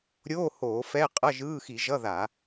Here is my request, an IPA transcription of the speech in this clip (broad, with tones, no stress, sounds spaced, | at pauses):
ɾʲ oː˧˥˧ h oː˧˩˧ f ɛ˧˥˧ qʼ ʌ˧˥˧ ʒ ɯː˧˥˧ x i˧˩˧ ʒ ʌ˧˥˧ ð a˧˩˧